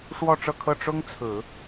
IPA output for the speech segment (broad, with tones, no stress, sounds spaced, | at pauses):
ʂ w ɔ˥˧ ʈ͡ʂ ɤ˥˧ kʰ ɤ˥˩ ʈ͡ʂ ʊ˥ ŋ t͡sʰ ɹ̩˨˩˦